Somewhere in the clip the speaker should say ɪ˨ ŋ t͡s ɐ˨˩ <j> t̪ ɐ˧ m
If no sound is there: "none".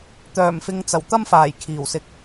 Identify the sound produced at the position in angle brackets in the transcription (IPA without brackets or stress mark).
w